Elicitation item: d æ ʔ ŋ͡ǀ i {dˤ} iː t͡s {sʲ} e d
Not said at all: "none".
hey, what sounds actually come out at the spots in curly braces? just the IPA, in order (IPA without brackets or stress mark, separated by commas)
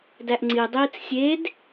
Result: dˤ, sʲ